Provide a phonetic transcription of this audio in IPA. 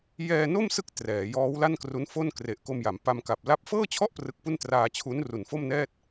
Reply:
jɛː˧no˥˩msɯ˦˥k̚ trɛː˩˦jɔː˦˥w la˥˩nkru˦˥nfo˥˩nkre˨˩ʔ ko˧mja˩˦mpa˧m ka˨˩p̚ la˦˥p̚ fɤː˥˩t͡ɕʰɔ˥˩ʔ prɯ˦˥k̚pu˥˩n traː˧t͡ɕʰu˦˥n ru˨˩nfo˥˩mnɛː˥˩t̚

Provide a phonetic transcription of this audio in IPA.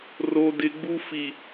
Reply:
ro˨dɪ˨ɡ͡bu˦ fi˨

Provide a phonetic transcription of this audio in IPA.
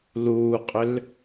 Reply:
luːqʼʏl

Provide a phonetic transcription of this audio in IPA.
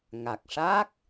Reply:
ŋa˨˩k̚ʂaː˦˥k̚

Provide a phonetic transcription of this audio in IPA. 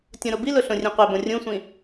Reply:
tʲõɾobilʊ ɬõrʲẽqʷɛbõ rʲũsʷĩ

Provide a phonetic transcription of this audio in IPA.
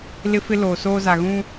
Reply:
lɪ˦fɪ˦ loː˨soː˦za˨ ɣũ˦

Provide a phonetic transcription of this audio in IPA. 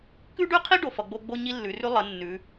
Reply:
kʉ˥ɖʉ˥qʰi˥ ɖo˩˧fʌ˩˧ɡ͡bo˥ ɡ͡bo˥ɲi˥lːʉ˩˧rʉ˥ lˠə˩˧ nːʉ˩˧

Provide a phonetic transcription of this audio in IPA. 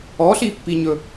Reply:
ɔɬipːiɲɵ

